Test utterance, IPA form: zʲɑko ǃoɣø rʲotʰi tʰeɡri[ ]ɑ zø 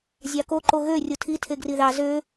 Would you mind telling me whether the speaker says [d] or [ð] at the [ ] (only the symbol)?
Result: ð